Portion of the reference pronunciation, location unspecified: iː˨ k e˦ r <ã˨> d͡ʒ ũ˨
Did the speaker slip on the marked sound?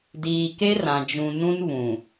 no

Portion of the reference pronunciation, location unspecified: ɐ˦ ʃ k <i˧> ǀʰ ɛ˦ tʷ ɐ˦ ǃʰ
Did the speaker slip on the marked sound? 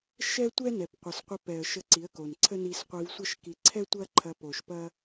no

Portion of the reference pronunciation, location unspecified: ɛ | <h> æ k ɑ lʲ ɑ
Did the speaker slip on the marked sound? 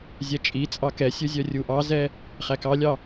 yes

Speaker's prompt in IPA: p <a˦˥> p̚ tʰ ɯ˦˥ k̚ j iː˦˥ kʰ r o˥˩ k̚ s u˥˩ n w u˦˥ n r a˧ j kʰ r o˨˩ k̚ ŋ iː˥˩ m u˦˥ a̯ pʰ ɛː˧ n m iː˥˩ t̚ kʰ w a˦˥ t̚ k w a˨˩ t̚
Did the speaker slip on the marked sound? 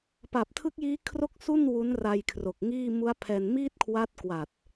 yes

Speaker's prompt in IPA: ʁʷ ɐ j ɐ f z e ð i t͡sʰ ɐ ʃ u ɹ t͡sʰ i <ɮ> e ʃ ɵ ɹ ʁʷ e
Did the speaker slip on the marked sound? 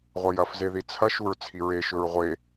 yes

